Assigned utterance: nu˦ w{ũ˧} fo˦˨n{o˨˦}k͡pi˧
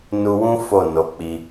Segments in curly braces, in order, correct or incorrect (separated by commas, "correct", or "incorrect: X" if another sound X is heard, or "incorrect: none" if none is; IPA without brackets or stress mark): incorrect: ũ˦, correct